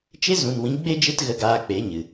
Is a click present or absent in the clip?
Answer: absent